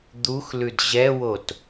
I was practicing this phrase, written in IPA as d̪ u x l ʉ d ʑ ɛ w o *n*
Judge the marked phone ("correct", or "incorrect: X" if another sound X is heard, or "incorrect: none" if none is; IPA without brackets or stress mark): incorrect: t